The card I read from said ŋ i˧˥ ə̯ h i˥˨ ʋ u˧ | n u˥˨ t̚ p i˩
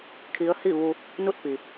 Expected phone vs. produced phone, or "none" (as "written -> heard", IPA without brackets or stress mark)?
ŋ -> kʰ